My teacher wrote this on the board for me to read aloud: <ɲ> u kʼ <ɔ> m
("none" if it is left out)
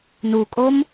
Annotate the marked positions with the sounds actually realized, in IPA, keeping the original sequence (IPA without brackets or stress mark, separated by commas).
n, o